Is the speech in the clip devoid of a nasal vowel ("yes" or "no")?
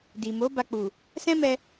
no